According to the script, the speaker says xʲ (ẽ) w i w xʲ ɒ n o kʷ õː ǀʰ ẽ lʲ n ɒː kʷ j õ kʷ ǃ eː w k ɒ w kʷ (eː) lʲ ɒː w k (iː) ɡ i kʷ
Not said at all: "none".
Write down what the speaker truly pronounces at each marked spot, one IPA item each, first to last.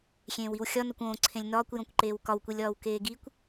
ẽː, e, eː

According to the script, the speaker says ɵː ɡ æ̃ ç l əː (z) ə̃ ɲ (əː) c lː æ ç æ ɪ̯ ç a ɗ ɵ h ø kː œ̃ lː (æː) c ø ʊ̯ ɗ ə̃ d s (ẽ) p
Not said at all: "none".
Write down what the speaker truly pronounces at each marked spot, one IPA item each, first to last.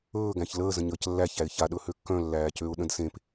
z, əː, æː, ẽ

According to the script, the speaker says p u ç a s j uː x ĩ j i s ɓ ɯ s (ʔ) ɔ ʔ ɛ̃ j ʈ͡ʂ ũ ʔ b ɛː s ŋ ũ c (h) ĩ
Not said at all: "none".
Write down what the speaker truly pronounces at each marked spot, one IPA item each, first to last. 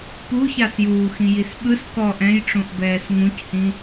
k, h

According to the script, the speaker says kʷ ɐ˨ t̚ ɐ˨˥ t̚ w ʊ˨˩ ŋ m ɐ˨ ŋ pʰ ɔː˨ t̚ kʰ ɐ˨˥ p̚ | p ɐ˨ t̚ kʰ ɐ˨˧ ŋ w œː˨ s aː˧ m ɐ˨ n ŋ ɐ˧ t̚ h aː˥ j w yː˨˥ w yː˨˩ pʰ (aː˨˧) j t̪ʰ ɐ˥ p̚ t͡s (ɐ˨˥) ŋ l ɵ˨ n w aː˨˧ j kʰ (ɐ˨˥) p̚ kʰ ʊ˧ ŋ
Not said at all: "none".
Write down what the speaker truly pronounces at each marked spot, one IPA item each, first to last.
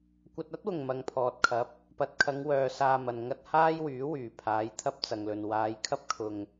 aː˨˥, ɐ˨, ɐ˥

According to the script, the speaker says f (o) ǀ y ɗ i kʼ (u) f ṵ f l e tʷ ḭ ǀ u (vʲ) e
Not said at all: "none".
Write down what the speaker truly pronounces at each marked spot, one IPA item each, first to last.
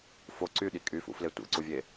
o, y, vʲ

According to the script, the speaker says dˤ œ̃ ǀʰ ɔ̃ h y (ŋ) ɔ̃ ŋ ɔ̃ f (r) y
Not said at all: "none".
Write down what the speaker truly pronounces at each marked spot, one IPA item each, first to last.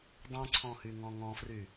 ŋ, r

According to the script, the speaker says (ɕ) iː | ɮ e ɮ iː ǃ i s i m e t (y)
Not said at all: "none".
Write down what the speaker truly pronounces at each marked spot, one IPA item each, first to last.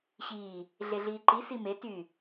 ɕ, y

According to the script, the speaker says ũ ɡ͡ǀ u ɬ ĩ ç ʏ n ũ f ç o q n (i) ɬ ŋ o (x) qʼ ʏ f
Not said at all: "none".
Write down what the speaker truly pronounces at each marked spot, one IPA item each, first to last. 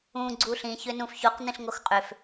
ĩ, x

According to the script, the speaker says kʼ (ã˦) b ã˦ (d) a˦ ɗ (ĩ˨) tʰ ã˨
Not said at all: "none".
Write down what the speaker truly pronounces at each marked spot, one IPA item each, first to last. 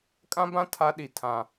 ã˦, tʰ, i˨

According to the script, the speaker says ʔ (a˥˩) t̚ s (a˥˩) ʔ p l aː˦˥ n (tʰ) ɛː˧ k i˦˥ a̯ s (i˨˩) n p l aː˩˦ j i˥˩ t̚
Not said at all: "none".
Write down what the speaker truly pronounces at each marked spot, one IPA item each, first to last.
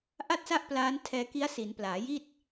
a˥˩, a˥˩, tʰ, i˩˦

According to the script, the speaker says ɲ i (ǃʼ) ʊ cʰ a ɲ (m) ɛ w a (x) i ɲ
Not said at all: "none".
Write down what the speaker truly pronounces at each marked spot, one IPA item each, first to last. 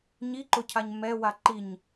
ǃ, m, ǃ

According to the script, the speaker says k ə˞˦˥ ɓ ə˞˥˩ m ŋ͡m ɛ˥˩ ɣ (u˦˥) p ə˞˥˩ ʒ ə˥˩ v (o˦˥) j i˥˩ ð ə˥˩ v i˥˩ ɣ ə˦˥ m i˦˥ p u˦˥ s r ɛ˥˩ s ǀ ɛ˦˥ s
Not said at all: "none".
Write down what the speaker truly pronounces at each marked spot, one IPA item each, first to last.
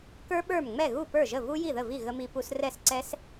u˥˩, u˦˥

